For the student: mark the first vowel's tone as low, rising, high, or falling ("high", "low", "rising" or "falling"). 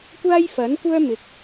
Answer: high